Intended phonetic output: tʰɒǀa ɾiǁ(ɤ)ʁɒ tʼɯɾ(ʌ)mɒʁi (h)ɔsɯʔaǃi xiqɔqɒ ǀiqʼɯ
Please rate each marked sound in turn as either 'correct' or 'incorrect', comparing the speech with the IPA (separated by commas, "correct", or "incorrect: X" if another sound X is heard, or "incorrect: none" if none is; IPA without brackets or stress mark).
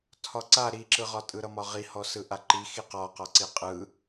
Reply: incorrect: ɯ, correct, correct